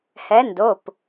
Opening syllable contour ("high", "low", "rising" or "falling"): rising